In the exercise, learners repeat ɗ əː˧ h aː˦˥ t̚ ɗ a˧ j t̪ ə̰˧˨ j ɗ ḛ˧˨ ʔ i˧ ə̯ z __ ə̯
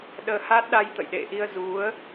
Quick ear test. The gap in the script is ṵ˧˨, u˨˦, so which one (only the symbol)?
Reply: u˨˦